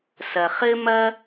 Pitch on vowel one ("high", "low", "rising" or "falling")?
low